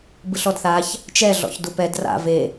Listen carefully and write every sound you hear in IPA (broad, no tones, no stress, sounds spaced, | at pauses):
b ɯ ɬ ɔ d θ a ç | t͡ʃ ɛ ɮ ɔ̰ ç d u p ɛ d r a̰ v e